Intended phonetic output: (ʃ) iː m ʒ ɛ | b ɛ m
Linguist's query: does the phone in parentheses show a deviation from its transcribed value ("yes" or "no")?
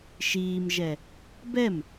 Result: no